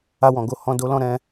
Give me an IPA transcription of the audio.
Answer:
a˧ w ɔ̃˨ ɡ o˧ h ɔ̃˧ d o˦ l ɔ̃˦ ɾ ɛ̃˦

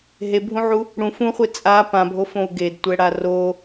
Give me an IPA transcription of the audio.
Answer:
ɦ e bʱ ũ ʕ u | ɽ ũ f ũ χʷ e t͡sʼ a p ã bʱ o f õ u̯ ɡ e d tʷ ɛ ɽ a r o

